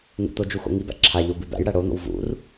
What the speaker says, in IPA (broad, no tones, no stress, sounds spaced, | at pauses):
ŋ ṵ t̪ o d͡ʒ u x o̰ ŋ i b æ̰ ǁʰ a ʎ o b ʉ b æ̰ j ɽ æ ɽ o n̪ o̰ w v ṵ r